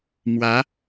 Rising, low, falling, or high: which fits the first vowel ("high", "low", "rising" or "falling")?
rising